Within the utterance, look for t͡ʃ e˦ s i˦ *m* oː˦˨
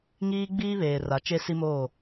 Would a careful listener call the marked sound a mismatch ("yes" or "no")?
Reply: no